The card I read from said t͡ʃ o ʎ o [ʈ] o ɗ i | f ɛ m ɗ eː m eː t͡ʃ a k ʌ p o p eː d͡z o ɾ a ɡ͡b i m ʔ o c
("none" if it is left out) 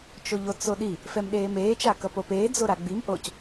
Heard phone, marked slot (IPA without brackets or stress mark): t͡s